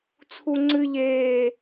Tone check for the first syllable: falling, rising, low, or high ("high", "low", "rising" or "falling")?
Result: high